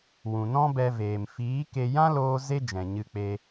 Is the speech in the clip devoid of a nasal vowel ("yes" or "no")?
no